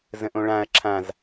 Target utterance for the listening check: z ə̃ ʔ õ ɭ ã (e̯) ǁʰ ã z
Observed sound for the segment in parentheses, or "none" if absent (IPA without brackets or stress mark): ɐ̯